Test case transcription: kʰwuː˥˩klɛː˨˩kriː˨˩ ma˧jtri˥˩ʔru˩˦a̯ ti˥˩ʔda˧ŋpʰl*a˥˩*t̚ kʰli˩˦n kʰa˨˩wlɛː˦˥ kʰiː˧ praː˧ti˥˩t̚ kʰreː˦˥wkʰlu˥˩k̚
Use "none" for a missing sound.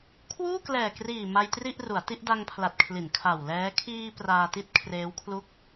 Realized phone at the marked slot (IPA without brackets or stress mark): a˨˩